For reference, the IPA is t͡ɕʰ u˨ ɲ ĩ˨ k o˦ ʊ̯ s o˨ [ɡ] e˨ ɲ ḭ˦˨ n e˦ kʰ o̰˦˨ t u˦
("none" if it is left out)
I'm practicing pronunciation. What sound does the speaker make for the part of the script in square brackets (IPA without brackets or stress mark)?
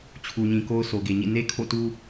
ɡ